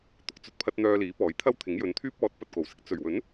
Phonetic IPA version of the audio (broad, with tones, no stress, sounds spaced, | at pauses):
t̪ ʊ˧ k̚ t͡s ɵ˧ t̚ pʰ ɐ˧ t̚ n̪ œː˧ l iː˨˥ p ɔː˨˥ j t̪ʰ ɐ˥ w t̪ʰ ɪ˨˥ ŋ j ɵ˨˧ n t̪ʰ yː˥ p̚ ɔː˨˥ t̚ p ɐ˨ t̚ k o˨˩ w s ɪ˥ k̚ t͡s ɵ˨˩ ɥ w ɵ˨˥ n